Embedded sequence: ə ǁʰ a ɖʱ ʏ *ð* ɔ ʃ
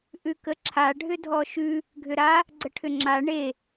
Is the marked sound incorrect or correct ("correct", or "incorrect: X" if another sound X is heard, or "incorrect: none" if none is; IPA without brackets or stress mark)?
incorrect: dʱ